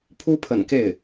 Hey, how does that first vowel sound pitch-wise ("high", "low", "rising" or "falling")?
high